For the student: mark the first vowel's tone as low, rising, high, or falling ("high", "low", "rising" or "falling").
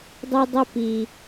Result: high